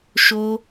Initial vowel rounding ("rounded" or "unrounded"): rounded